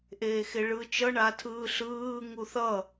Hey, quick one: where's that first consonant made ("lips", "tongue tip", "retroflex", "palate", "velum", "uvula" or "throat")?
throat